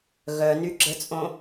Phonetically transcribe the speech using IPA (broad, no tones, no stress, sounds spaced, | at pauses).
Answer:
ɣ œ n y ɡ͡ǁ ə t͡sʼ õ